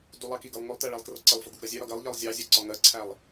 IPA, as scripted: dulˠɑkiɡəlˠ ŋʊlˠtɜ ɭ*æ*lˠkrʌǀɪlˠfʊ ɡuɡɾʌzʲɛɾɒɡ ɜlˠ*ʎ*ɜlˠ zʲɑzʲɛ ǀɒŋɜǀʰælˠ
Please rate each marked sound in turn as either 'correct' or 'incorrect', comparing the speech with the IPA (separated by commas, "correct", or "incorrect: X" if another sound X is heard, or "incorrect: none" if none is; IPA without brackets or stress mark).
correct, correct